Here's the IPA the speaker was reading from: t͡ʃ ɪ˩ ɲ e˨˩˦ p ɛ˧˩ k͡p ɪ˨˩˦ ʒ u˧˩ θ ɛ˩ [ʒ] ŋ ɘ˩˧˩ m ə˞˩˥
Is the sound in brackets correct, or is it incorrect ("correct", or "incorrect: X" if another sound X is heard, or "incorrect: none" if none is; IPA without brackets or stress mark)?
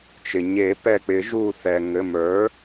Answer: incorrect: none